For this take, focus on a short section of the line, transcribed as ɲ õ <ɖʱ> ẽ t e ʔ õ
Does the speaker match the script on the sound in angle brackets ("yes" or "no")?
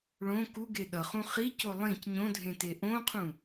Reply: no